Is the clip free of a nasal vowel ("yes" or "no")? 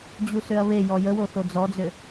yes